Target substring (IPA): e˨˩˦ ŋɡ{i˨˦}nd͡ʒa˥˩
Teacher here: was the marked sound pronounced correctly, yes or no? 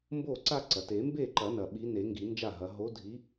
no